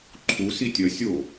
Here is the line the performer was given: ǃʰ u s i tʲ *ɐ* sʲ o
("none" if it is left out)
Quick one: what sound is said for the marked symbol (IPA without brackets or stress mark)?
ɐ